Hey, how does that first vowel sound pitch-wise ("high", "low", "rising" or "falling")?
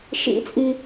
high